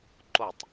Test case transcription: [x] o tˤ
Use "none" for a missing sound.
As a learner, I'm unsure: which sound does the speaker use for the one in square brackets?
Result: ǃ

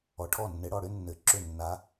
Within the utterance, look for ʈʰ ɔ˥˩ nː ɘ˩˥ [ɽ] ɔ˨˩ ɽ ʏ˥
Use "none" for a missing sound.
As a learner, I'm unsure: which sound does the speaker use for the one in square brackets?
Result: ɽ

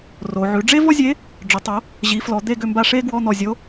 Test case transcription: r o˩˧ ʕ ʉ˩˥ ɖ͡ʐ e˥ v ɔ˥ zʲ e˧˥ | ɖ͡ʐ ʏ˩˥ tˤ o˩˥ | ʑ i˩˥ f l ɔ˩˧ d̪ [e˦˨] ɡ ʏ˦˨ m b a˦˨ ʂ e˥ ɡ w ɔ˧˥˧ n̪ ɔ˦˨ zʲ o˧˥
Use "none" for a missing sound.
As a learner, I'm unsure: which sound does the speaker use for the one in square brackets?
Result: e˦˨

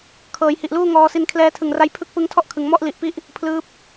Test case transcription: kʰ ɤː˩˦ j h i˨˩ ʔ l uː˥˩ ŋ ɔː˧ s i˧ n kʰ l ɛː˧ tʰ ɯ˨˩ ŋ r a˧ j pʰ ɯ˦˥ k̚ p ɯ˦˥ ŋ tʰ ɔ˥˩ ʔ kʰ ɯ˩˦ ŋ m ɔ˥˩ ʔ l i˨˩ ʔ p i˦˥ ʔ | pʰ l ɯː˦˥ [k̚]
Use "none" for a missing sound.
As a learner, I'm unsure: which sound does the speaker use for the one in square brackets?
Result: p̚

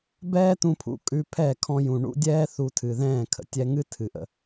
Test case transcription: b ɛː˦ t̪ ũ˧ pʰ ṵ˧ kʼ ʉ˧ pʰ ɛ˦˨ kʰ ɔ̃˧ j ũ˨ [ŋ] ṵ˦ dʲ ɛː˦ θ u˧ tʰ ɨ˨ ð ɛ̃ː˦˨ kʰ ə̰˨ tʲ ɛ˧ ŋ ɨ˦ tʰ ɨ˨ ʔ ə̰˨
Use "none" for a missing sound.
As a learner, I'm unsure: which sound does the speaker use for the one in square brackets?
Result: ɳ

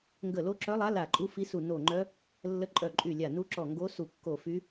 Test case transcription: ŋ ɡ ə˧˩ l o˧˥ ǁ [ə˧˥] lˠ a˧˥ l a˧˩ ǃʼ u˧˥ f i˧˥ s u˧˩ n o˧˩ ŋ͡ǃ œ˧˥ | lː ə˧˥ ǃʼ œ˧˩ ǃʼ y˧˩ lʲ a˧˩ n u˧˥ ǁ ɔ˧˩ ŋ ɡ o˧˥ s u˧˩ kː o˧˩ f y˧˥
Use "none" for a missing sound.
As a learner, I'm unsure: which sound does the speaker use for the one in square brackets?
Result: œ˧˥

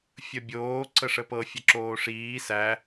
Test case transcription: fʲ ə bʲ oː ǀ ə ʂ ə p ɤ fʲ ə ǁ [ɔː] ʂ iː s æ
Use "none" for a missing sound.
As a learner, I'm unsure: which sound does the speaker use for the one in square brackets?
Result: oː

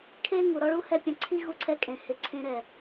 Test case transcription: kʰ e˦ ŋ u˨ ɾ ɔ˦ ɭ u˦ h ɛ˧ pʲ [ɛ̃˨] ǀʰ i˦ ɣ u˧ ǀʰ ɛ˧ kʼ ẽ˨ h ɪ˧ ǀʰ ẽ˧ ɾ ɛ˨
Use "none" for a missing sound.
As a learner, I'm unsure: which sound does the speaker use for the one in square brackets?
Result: ɛ̃˨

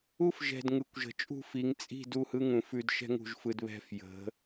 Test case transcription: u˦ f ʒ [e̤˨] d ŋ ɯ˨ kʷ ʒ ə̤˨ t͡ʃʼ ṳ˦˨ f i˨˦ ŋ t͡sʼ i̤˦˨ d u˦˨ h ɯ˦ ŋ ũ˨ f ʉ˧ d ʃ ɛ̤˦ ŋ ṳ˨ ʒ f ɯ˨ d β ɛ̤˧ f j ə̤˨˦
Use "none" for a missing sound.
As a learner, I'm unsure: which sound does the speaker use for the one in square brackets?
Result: ɛ̤˨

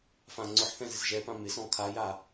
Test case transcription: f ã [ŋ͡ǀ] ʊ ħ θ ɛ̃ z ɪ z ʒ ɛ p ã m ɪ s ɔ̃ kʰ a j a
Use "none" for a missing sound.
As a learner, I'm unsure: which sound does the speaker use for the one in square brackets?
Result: ŋ͡ǀ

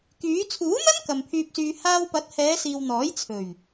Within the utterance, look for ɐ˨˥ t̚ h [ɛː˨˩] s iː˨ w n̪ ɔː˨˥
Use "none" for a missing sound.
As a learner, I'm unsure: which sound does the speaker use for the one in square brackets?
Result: ɛː˨˧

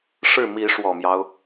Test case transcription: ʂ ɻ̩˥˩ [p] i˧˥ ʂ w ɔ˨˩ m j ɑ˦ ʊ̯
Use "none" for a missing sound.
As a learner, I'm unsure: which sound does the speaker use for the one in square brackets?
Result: m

